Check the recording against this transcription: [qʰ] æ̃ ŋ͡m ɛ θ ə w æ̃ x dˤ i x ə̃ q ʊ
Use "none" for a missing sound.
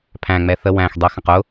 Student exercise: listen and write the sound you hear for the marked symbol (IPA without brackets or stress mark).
pʰ